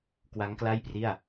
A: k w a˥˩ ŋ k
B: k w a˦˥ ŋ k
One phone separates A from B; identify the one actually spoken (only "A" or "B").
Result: B